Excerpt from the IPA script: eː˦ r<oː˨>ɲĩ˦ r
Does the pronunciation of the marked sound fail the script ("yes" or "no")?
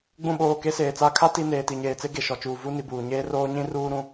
yes